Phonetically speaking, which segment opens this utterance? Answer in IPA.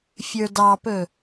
fʲ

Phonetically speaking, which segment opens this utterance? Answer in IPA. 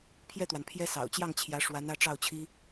pʰ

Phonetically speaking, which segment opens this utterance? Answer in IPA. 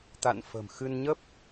t̪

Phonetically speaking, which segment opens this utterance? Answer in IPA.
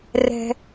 r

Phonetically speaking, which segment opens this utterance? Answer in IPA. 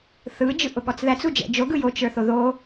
θ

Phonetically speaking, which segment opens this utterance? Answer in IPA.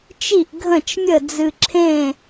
t͡ʃ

